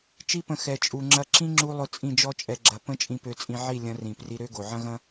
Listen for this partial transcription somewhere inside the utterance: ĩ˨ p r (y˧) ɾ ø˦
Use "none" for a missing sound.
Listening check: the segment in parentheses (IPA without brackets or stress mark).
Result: i˧